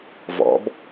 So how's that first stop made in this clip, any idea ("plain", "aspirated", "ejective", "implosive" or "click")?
plain